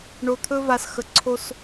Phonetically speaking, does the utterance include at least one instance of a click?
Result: yes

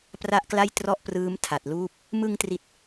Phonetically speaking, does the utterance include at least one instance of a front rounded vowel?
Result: no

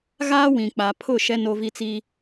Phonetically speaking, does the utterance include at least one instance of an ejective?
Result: no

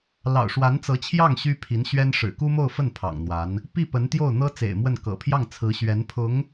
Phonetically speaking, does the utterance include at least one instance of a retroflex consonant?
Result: yes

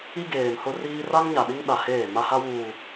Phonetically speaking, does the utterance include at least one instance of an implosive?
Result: yes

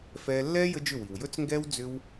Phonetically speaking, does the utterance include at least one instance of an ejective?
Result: no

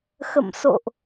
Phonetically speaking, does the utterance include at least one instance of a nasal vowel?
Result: no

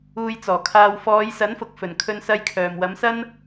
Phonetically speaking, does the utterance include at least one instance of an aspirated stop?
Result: yes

